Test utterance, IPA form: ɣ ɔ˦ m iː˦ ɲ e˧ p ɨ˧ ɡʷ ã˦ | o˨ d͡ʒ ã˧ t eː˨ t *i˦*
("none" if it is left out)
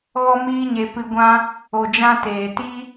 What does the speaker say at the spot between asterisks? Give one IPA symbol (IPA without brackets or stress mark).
i˦